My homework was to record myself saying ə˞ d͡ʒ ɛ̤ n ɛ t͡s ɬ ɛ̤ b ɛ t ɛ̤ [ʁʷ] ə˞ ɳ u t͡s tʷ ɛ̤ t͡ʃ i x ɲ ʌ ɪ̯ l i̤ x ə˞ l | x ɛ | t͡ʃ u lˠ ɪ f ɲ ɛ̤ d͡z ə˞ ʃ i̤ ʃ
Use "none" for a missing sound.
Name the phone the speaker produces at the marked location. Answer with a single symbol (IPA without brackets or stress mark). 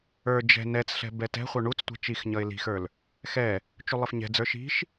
χʷ